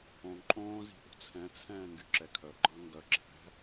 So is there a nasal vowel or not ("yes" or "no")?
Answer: yes